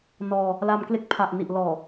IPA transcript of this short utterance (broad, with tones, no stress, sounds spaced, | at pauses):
n ɔː˧ | l a˧ m k l e˦˥ k̚ pʰ a˨˩ ʔ n i˨˩ ʔ l ɔː˨˩